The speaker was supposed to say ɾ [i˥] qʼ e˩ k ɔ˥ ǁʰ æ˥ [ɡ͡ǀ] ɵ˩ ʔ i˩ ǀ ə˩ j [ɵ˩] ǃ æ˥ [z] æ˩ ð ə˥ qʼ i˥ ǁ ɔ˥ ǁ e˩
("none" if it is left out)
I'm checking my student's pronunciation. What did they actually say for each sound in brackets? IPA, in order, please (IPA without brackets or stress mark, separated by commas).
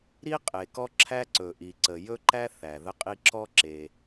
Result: i˥, ǀ, ɵ˥, θ